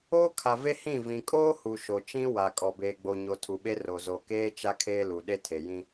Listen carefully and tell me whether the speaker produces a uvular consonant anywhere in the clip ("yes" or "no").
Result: no